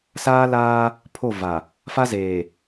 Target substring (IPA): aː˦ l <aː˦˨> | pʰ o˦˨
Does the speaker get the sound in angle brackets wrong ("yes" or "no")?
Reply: yes